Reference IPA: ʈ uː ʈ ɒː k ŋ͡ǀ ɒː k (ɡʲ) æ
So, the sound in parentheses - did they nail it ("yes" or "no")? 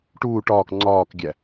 yes